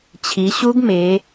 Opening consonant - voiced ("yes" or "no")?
no